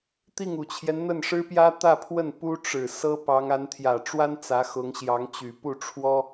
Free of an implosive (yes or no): yes